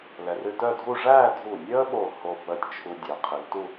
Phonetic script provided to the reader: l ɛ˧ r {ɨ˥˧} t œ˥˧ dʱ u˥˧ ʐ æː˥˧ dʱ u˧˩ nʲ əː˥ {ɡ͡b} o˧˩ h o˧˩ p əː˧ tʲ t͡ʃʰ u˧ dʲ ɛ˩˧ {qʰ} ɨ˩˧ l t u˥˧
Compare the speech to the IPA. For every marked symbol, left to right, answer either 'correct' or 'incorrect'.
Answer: correct, incorrect: ɓ, correct

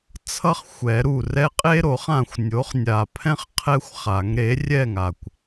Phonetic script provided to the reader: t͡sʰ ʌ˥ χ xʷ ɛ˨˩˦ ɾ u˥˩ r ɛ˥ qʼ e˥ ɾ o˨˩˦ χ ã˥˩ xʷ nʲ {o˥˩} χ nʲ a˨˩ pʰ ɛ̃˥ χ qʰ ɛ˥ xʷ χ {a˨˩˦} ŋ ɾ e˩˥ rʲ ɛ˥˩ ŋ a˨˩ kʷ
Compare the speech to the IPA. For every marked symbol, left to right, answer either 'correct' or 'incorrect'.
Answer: incorrect: o˩˥, correct

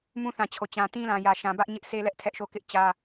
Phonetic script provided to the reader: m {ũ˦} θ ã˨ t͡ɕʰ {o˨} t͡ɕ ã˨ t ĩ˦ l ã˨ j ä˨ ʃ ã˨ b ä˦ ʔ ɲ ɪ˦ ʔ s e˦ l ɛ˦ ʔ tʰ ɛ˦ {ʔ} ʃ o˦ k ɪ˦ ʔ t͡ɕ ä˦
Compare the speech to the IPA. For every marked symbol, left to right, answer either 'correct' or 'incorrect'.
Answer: correct, correct, correct

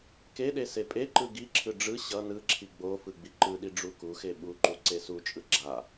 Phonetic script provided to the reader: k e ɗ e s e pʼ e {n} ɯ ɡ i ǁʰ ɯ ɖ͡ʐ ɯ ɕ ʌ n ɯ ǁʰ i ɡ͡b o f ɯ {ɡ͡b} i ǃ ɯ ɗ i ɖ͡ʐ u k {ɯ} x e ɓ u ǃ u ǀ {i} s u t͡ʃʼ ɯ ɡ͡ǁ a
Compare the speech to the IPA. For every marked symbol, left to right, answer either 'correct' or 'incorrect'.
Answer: incorrect: ǃ, correct, incorrect: u, incorrect: e

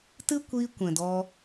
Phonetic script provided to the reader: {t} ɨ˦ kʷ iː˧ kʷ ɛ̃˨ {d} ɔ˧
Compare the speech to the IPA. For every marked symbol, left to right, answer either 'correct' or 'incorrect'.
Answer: correct, correct

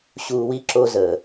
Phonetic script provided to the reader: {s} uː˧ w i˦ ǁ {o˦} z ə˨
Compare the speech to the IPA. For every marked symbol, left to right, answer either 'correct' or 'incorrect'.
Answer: incorrect: ɕ, correct

